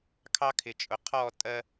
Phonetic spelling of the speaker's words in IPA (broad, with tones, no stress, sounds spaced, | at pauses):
kʰ ɑ˦ kʰ ɪ˨ t͡ʃʼ ʊ˨ qʰ ɔ˦˨ tʼ ɜ˦